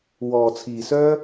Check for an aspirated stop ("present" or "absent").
present